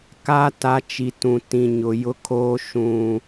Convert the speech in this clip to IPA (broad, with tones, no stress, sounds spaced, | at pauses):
k a˦ t a˨ t͡ʃ i˨ t ũ˨ t ĩ˨ ɲ ʊ˨ j ʊ˦ kʰ oː˦ ʃ ũ˨